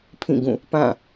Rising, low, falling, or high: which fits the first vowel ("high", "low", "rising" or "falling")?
falling